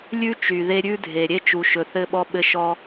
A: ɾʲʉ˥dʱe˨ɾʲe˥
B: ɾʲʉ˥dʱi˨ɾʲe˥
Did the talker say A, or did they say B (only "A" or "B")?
A